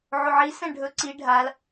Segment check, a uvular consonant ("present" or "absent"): absent